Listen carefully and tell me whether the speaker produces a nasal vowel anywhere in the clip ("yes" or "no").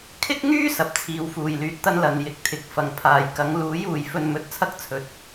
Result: no